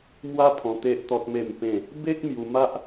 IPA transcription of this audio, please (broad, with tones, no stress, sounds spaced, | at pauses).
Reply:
m w a˦ pʰ ɔ̃˧ t̪ e˦ ʔ t̪ ɔ˦ t̚ m e˥˧ m p ẽ˥˧ | b e˦ k̚ m j u˧ m a˦ ʔ